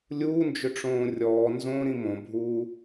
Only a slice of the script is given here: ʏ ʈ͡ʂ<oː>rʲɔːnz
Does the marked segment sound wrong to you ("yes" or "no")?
yes